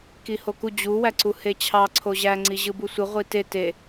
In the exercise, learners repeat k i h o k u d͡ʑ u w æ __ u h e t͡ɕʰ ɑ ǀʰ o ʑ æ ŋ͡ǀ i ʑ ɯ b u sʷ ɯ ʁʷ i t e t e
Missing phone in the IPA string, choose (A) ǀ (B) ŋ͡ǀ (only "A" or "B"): A